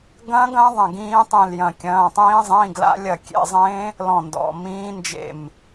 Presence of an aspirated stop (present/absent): absent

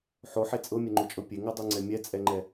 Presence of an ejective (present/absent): present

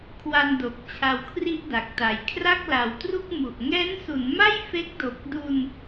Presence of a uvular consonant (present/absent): absent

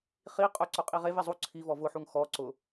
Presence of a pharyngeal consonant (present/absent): present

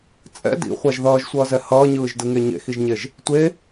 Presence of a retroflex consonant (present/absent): absent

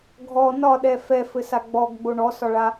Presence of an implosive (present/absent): present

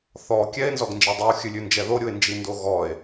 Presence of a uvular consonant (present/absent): absent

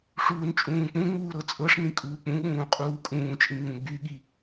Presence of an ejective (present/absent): present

